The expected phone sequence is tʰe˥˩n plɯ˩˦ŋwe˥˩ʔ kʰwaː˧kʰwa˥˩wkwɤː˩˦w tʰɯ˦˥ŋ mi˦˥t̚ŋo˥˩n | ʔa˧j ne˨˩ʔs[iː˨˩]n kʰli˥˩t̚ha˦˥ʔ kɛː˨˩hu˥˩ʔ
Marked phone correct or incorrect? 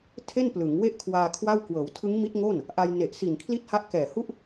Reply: incorrect